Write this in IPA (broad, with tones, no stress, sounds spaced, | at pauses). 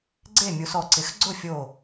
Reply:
ɡ͡ǀ e˥˨ mʲ u˨˦ s ɔ˧˩ ǀ ɪ˨˦ x ɡ͡ǀ ʊ˥˨ fʲ o˧˩